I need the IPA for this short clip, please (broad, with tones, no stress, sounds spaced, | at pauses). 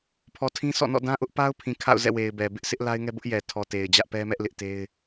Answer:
pʰ ɔ˨ tʰ ĩ˦ sʰ ɔ̰˦˨ n ɔ̰˦˨ d ã˦ ʔ ʊ˦ ʔ p a˦ ʊ̯ pʰ ĩ˨ kʰ a̰˦˨ ʊ̯ z ɛ̰˦˨ w e˨ ɪ̯ b ɛ˨ b ɪ˦ ʔ sʰ ɪ˦ ʔ l a˦ ɪ̯ ŋ ɛ˦ b ʊ˦ ʔ j ɛ˨ tʰ ɔ˨ t e˨ ɪ̯ d͡ʑ ä˦ ʔ p ɛ˦ m ɛ˦ ʔ l ɪ˦ ʔ t e˦ ɪ̯